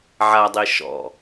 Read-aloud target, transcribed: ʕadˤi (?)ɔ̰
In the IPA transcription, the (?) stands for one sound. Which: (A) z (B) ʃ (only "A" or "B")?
B